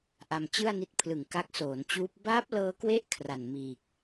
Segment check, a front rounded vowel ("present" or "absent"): absent